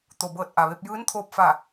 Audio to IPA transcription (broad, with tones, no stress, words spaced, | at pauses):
t̪o˩bɤː˧˩t̚ʔa˩ʋe˧p̚ jɯː˧˥nt̪ʰoː˧p̚fa˧˩